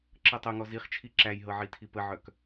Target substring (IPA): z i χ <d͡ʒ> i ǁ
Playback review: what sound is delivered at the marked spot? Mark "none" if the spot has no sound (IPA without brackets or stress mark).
t͡ʃʰ